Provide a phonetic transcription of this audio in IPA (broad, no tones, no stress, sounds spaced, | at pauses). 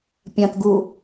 pʲ ɐ̃ t ɡ u